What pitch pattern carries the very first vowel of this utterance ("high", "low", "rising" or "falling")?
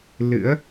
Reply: rising